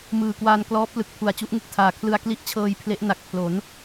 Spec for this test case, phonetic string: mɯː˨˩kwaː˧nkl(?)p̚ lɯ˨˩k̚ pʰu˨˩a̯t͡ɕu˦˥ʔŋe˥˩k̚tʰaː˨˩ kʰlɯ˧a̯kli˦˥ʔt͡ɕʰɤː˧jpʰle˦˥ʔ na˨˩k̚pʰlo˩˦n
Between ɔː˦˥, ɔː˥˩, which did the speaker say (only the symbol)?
ɔː˦˥